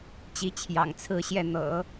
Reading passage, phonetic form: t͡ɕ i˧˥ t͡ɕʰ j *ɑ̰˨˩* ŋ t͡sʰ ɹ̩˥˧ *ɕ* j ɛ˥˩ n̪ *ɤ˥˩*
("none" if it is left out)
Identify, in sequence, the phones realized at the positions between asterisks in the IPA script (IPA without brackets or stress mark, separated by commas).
ɑ̰˨˩, ɕ, ɤ̰˨˩˦